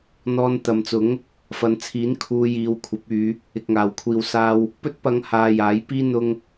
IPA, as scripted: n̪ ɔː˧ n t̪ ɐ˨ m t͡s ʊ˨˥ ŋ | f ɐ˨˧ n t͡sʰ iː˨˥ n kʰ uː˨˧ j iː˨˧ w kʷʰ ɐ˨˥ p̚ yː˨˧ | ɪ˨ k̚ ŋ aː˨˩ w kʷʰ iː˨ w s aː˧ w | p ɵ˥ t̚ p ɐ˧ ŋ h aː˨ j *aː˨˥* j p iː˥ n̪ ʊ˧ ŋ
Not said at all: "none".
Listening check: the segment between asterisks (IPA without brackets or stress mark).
aː˨˥